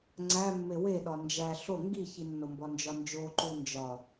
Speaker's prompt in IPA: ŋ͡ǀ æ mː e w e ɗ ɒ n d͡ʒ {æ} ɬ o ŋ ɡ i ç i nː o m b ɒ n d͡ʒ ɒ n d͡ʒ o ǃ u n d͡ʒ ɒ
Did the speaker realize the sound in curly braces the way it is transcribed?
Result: yes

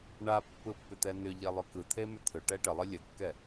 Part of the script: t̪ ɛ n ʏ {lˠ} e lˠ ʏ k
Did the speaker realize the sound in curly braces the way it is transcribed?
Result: no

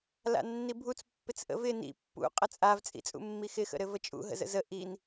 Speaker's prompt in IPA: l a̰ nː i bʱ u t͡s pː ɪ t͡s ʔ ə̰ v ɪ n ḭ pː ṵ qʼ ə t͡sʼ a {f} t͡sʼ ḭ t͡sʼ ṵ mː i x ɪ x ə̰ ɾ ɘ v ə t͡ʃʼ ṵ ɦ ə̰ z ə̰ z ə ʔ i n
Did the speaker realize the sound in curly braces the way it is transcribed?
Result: no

